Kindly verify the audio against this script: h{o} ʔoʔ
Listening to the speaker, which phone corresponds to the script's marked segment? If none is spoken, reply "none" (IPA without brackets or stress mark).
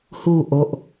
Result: u